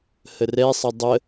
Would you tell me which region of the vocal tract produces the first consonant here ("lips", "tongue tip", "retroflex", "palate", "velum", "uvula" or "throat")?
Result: throat